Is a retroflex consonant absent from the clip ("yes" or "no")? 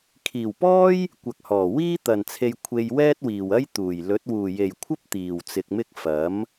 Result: yes